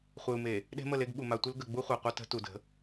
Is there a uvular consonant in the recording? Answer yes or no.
yes